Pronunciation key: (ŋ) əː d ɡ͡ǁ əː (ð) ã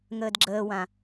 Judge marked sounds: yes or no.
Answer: yes, no

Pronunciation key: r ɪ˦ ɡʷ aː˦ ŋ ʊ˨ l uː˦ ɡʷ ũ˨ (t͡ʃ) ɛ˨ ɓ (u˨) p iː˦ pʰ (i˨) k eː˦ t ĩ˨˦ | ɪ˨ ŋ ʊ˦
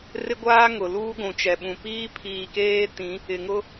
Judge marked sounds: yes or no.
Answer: yes, no, no

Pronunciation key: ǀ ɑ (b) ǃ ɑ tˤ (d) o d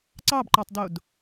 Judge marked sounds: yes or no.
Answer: yes, yes

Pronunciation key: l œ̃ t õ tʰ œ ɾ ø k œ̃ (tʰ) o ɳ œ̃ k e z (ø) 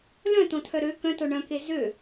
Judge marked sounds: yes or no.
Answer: no, yes

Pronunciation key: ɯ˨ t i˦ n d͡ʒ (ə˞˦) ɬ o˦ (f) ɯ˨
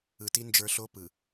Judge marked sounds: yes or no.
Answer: yes, no

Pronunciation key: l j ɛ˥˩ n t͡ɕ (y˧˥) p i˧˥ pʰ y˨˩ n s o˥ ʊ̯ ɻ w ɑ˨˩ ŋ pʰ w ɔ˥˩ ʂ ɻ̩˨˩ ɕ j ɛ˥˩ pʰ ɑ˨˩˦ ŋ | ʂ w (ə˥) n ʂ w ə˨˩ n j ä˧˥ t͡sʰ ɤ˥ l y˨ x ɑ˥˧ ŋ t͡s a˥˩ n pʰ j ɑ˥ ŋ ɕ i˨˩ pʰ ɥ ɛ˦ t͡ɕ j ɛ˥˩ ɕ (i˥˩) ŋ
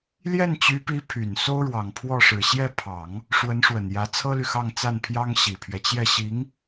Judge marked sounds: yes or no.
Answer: yes, no, no

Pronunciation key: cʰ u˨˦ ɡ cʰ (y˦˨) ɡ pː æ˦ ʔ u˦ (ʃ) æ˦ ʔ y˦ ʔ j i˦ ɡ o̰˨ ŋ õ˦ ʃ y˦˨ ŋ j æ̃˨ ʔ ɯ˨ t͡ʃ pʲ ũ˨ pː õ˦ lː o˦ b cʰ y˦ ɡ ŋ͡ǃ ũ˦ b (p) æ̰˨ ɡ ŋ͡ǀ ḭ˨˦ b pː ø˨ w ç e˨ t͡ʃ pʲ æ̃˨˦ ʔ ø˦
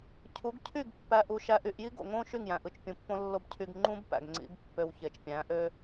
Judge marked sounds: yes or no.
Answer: yes, yes, yes

